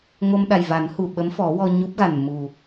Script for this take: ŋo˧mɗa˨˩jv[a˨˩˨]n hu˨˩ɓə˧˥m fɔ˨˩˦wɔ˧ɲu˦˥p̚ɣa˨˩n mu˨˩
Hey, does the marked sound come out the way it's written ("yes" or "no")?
no